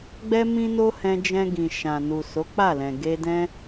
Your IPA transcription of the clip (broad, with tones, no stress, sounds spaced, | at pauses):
ɡ͡b ɛ˦ m ĩ˦ n o˦ h ɛ̃˧ d͡ʒ ɛ̃˧ ɡ ĩ˨ ʃ ã˨ n u˨ s o˨˦ k͡p a˦˨ l ɛ̃˨ ɡ e˧ d ɛ̃˦